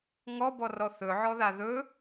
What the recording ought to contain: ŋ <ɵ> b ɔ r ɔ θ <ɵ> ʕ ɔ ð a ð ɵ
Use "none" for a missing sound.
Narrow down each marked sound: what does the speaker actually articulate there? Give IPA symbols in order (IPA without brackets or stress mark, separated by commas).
ɔ, ɵ